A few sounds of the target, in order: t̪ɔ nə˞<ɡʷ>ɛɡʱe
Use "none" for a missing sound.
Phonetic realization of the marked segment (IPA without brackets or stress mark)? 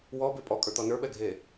ɓ